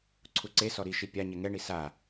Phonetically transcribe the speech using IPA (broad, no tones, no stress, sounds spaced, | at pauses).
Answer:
ǀʰ u ǀ e s ɔ ɾ i ʃ i pʲ a ɲ ɛ ŋ ɛ ɳ i s a